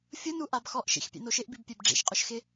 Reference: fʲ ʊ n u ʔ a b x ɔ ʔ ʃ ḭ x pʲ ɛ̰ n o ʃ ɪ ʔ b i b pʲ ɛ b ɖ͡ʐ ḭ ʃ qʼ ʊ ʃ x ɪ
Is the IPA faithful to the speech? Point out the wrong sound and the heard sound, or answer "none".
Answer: none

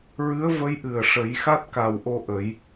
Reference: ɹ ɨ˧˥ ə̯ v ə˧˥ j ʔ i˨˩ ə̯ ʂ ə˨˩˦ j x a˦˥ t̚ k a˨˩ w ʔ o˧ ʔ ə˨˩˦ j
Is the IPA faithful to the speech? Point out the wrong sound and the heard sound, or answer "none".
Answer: i˨˩ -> ɨ˨˩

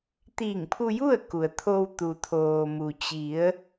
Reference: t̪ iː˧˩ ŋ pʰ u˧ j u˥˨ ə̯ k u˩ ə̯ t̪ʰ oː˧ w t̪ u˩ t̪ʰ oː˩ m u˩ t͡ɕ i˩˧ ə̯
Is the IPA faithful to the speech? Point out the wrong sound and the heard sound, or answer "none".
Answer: none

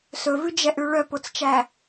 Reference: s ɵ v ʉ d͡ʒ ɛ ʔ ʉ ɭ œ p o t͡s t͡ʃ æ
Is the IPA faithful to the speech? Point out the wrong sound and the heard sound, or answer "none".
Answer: none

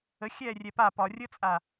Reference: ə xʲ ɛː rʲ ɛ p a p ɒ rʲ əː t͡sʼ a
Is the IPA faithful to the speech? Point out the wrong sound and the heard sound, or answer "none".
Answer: none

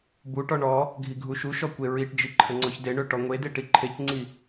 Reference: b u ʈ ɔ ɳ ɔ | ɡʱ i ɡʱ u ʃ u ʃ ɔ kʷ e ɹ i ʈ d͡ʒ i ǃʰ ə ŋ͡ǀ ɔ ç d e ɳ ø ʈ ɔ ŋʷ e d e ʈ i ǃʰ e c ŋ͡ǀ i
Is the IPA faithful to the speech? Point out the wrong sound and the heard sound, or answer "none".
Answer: none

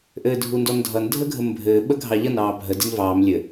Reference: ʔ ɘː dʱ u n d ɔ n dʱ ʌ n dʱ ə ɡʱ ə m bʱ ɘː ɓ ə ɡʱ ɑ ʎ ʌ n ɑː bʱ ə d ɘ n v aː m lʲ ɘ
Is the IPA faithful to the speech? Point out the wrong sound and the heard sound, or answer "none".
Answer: aː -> ɑː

